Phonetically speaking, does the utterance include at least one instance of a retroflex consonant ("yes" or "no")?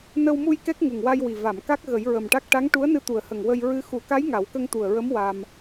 yes